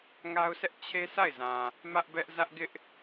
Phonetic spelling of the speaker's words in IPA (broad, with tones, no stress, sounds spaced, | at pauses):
ŋ a˦ ʊ̯ s ɛ˦ ʔ t͡ɕʰ e˦ s a˦˨ ɪ̯ z ã˨ | m ä˦ ʔ b ɛ˦ ʔ z ä˦ ʔ ɡ ɪ˦ ʔ